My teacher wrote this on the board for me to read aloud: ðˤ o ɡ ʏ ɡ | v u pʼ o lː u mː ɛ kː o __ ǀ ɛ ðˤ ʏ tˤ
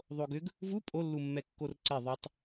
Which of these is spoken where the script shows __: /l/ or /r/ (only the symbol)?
r